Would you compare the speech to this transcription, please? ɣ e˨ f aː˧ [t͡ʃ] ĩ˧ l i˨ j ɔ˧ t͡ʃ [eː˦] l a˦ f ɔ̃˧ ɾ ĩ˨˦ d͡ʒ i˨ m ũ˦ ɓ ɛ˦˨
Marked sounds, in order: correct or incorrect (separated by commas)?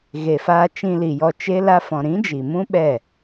correct, incorrect